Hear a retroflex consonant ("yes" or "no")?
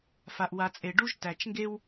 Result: yes